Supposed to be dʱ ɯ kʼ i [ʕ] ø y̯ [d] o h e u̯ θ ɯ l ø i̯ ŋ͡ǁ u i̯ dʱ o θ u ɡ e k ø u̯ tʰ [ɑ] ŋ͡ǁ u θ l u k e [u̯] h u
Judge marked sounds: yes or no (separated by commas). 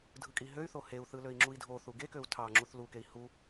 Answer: no, no, yes, no